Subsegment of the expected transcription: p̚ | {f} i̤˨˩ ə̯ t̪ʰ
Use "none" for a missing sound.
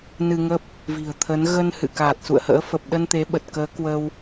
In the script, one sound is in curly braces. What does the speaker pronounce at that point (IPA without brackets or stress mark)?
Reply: v